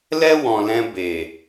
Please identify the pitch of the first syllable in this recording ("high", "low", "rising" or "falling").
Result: high